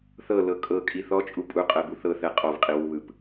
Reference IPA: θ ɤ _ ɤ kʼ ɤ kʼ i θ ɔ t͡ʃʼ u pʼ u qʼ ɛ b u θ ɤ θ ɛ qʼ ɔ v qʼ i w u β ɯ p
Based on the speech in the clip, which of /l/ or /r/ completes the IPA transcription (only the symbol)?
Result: l